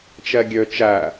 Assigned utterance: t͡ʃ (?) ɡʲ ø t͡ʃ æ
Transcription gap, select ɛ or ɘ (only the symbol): ɛ